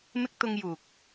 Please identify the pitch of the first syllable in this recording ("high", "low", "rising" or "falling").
high